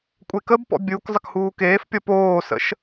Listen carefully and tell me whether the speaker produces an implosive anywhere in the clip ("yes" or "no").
no